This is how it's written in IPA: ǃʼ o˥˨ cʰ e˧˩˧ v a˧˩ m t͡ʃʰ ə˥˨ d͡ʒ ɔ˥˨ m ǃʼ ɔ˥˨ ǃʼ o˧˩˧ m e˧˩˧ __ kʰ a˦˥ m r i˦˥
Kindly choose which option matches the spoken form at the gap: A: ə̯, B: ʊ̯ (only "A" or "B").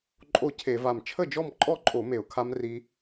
B